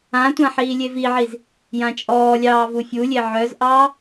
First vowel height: low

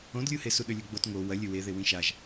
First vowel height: mid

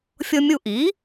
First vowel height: mid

